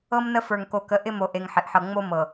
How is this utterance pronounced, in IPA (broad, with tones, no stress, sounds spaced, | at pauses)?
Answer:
ɤ˦ m n ə˦ f ə˞˨ ŋ k o˨ k ə˨˦ ʔ ɪ˦ m o˨ ʔ e˨ ŋ ħ ɪ˨ ʔ ħ ɤ˨ ŋ͡m o˦ m ɤ˨